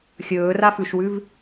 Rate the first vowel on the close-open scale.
mid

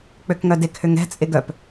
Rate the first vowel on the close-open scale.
mid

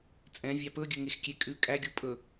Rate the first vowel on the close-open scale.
mid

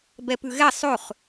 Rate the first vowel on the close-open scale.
mid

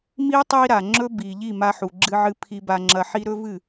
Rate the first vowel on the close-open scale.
close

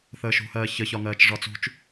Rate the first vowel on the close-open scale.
mid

